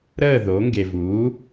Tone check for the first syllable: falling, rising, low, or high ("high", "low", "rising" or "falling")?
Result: falling